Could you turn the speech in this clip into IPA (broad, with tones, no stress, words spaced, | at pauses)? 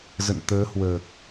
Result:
zə̰˧˨n t̪əː˨˦hwəː˨˩k̚